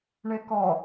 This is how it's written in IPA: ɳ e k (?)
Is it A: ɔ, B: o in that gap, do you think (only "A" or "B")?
A